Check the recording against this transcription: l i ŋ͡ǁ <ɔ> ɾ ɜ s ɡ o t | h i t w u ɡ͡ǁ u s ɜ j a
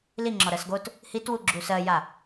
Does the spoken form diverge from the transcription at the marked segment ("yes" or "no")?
no